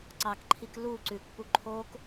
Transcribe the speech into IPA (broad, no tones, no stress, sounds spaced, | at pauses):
ǀ ɑ k ǃʰ i k l u ǀ ʉ k p u ǃʰ o k